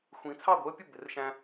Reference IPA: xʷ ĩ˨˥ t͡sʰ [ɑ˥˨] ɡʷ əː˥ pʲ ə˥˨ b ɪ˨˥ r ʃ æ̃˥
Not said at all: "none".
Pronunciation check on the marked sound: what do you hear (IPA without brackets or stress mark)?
ɑ˥˨